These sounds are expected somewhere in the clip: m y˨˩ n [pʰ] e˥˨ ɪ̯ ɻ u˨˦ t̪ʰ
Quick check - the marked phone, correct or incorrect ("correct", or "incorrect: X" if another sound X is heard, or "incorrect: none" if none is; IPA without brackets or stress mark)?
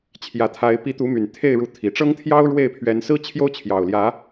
incorrect: t̪ʰ